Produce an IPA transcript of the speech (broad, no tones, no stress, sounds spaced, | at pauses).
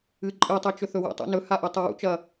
ɨ ǃʼ ɨ tˤ e t͡ʃ ɵ θ ɵ w ṵ tˤ ṵ n ɵ h a ʔ u tˤ e w ṵ t͡ʃ ɐ